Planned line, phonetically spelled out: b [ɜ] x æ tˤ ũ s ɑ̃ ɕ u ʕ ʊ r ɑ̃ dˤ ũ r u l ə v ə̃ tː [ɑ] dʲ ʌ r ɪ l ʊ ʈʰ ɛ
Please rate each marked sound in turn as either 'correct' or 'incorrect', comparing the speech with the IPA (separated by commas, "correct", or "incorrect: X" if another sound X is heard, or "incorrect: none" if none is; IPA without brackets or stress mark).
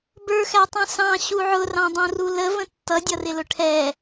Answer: incorrect: ə˞, incorrect: ʌ